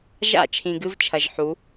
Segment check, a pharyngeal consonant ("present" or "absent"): present